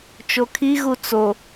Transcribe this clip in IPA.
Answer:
t͡ʃ o kʰ i ɣ u t͡s o

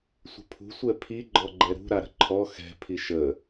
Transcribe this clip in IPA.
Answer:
sʷ ə̤ pʰ ṳ sʷ ɛ pʰ i ɡ͡ǃ ɔ ɡ͡ǃ ɛ ɾ ṳ ɾ a ɾ ə̤ ǃʰ ɔ x ɛ̤ pʰ i ʃ ə

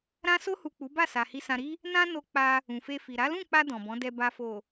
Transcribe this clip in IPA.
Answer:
ɾ ã˧ s o˧ h u˨ k͡p u˨˦ b a˦˨ s a˨ h i˨ s ã˨ ɾ i˧ | n ã˦ n o˧ k͡p a˧ | ũ˨ f e˧ f i˨ ɾ a˨˦ l ũ˦˨ k͡p a˧ d ɔ̃˨ b ɔ̃˨˦ d ɛ˧ b a˨ f o˨

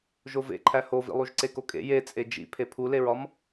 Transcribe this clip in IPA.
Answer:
ʒ o v ḛ ǃʰ æ h o v ḭ lˠ u ʒ ǀ e k o kʼ ḛ j e t͡sʼ e d͡ʒ ḭ pʰ e pʰ u l e ɹ ɒ m

